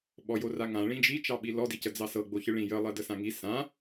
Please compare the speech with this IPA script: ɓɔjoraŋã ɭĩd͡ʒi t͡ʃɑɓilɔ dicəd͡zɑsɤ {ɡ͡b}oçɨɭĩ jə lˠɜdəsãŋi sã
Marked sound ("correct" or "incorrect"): correct